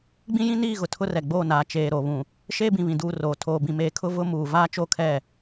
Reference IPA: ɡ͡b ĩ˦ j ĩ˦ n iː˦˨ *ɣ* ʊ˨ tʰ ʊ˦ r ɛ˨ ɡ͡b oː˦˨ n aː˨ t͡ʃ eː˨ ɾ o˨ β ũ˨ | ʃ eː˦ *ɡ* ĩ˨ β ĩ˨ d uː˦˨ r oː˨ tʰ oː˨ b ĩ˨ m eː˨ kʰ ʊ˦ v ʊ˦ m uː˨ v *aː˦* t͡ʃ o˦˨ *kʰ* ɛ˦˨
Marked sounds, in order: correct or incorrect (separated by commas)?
correct, incorrect, correct, correct